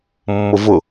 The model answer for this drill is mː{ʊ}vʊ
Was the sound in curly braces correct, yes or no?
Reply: yes